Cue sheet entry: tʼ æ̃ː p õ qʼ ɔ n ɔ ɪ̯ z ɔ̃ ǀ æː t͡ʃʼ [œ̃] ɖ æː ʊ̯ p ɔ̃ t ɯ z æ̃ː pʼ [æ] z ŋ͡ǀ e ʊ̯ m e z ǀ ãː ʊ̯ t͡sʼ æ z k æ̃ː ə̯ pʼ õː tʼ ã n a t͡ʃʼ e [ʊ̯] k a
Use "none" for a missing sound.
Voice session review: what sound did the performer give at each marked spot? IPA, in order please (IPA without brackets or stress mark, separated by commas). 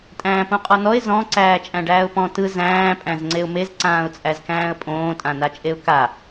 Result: æ̃, æ̃, ʊ̯